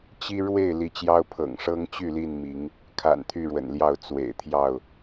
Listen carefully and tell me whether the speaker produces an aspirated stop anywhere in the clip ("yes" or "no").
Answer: yes